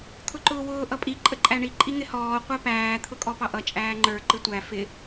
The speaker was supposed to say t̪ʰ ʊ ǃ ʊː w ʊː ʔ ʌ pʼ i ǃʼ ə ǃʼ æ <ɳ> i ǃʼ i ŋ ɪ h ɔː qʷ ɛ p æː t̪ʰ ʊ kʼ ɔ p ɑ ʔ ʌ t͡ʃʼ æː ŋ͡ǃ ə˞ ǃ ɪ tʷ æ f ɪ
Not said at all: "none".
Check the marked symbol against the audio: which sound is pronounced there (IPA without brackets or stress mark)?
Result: ɳ